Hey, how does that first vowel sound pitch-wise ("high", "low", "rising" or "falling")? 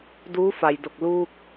rising